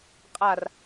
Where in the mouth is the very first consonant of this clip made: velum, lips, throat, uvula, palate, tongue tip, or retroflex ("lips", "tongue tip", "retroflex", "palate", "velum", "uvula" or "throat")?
uvula